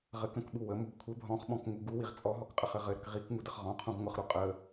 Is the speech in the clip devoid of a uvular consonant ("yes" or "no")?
no